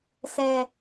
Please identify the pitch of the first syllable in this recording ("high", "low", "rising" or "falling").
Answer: low